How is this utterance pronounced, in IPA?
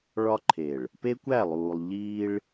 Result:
ɭɒ˦ǃʰe˨ɭ | pe˦kʷæ˦˨lˠuː˨lˠ ʎiː˦ɭ

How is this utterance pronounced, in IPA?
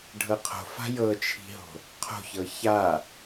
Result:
ɖʱɤqʰo̤fa̤ jɤt͡ʃʰi̤ɦo̤ | qʰo̤çɤ ça

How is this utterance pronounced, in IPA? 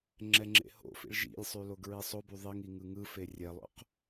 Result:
ŋ͡ǁɛŋ͡ǁḛho̰fḭɭ ʒḭlʲsˤy loɡɹisˤoby ðˤiŋ iŋɯŋɯfe rʲɛlˠo̰q

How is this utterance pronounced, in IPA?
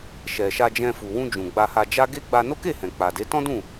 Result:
ʃɛ˨ʃa˧d͡ʒɛ̃˧ fu˨wũ˧ d͡ʒũ˨ɡ͡ba˧ha˧d͡ʒa˦ ɡe˦ ɡ͡ba˧no˦ke˦˨ hɛ̃˨k͡pa˨de˨˦ tɔ̃˦dũ˦˨

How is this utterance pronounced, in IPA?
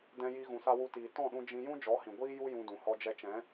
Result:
dɛ̃˧ ji˧ ɣũ˧sa˦wu˦tiː˧ tɔ̃˦˨ɗũ˧ d͡ʒĩ˧ jũ˦d͡ʒɔ˨˦hĩ˨ ɡʷiː˦ju˦ jũ˧ dũ˨hɔ˧d͡ʒɛ˧ t͡ʃɛ̃˨˦

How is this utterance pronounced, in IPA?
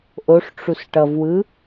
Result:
ʔoʂʈ͡ʂus ʈʌvwɯ

